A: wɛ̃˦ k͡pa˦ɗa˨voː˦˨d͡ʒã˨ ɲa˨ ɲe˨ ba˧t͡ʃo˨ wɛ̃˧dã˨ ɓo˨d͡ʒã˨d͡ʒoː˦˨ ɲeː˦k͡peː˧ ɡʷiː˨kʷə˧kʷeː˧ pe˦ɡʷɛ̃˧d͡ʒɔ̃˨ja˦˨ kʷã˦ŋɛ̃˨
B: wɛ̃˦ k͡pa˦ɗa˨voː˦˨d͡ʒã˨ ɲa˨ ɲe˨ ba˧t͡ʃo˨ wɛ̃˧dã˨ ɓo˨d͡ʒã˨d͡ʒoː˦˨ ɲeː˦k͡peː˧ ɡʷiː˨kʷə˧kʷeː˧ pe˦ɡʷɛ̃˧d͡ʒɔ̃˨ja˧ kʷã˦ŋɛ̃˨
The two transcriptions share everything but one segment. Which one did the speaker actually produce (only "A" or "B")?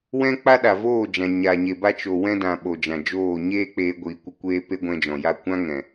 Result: A